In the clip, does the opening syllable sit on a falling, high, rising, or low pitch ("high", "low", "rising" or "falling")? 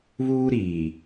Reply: high